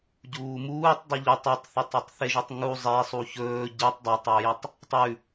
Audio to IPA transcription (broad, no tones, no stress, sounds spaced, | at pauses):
ɟ uː m uː tˤ dˤ u ʎ ɵ tˤ a tˤ θ a tˤ a tˤ θ e ʒ ʉ tˤ ŋ u zˤ e sˤ u ç ɵː ɟ i tˤ dˤ o tˤ w ɵ j i tˤ | tˤ ʉ